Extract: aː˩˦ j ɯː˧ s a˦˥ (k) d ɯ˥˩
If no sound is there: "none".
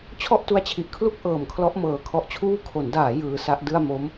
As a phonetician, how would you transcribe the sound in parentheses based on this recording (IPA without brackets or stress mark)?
ʔ